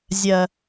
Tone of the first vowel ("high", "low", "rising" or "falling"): low